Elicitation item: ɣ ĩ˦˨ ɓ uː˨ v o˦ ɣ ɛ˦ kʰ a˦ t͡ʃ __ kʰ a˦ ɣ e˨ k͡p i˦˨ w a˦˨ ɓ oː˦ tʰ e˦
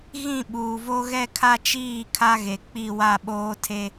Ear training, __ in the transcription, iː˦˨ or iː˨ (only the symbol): iː˦˨